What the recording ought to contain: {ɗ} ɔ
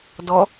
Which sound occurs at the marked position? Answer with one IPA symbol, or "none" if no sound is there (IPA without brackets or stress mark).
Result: d